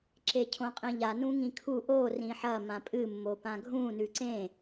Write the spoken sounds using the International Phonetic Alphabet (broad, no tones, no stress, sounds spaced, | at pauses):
ǁ e cʰ õ qʼ ĩ ʎ a n ũ ŋ ĩ kʰ u ʔ o r ĩ ħ ɐ m ã pʼ ɨ mː o p ã ɡʱ ũ n ʉ ǀ ẽ